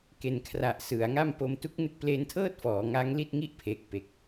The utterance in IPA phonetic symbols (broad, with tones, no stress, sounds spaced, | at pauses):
k e˨˩ n kʰ r a˨˩ ʔ s ɯ˩˦ a̯ ŋ a˥˩ m p o˧ m t u˦˥ k̚ n ɯ˦˥ k̚ p l e˧ n tʰ ɤː˥˩ t̚ f ɔː˩˦ ŋ a˦˥ ŋ l i˥˩ t̚ ŋ i˥˩ ʔ pʰ eː˨˩ k̚ p e˨˩ k̚